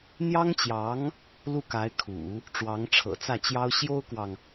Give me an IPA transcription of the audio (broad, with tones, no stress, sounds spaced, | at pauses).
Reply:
n̪ j ɑ˥ ŋ t͡ɕ j ɑ˧˥ ŋ | l u˥˩ k a˧˥ ɪ̯ kʰ ṵ˨˩˦ | ʈ͡ʂ w ɑ˧˥ ŋ ʈ͡ʂʰ ɤ̰˨˩ t͡s ä˥˩ t͡ɕ j ɑ˥ ʊ̯ ɕ j o˥ ʊ̯ k w ɑ˨ ŋ